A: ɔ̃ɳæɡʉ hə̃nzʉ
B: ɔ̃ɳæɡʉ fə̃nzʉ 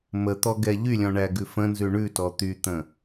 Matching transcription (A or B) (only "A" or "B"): B